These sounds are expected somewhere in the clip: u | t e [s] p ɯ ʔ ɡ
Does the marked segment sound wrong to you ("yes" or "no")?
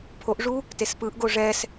no